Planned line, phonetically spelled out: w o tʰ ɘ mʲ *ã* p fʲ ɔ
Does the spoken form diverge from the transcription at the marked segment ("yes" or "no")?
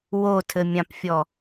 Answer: no